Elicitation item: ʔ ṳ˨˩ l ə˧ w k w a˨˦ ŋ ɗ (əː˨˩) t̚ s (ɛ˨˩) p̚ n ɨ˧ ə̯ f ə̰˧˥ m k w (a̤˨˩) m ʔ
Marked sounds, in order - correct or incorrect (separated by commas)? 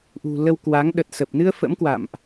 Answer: incorrect, incorrect, incorrect